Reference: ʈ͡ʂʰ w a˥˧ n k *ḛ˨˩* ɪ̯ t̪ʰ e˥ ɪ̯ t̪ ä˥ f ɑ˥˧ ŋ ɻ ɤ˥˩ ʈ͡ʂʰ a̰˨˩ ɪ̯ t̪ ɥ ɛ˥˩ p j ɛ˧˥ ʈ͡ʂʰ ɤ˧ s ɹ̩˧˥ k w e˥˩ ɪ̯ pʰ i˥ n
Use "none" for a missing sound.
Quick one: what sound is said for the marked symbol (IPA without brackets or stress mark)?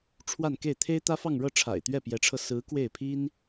e˥˩